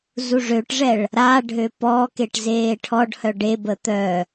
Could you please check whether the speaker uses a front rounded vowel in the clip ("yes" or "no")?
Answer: yes